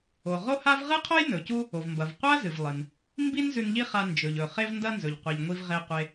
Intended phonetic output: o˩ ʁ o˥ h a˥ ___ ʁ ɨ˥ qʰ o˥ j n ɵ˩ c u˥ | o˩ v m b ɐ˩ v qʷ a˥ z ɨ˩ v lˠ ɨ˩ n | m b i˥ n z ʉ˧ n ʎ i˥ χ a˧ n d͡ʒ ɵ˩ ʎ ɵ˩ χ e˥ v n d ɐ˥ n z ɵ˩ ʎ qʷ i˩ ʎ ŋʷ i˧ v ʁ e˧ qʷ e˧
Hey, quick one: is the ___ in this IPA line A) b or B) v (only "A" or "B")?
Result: B